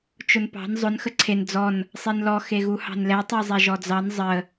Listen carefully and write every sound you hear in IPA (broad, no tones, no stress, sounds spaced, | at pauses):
t͡ʃ ʊ n p ɑ̤ n zˤ ʊ n x ə ǀʰ e n d͡z ɔ n | sˤ e n l ɔ x e ɣ u h ɑ̤ n l ɛ tˤ ɛ zˤ ɛ ʒ ɔ d͡z ɑ n zˤ ə